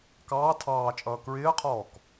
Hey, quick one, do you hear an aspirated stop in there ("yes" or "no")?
yes